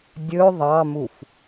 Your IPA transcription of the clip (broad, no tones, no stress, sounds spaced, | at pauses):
dʲ ɵ ðˤ ɑ m u f